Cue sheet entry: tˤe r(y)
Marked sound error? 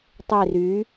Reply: no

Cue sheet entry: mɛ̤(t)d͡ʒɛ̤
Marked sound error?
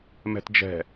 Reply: no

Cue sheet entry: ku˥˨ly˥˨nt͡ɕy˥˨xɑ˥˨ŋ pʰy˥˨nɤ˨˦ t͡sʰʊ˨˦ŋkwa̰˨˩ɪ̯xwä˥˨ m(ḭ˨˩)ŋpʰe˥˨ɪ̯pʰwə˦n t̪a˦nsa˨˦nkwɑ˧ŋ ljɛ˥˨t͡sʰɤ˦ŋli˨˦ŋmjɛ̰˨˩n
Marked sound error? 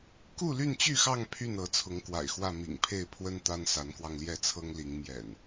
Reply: no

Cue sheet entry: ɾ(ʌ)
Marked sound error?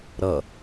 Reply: no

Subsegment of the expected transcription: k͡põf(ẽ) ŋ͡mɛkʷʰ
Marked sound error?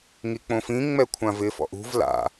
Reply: yes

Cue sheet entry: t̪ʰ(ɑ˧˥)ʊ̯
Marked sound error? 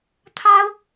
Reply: yes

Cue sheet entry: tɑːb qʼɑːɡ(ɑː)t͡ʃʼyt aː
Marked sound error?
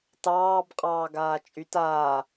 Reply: yes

